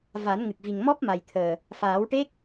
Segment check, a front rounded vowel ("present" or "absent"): absent